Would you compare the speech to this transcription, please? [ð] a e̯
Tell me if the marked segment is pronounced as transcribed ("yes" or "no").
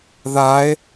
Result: yes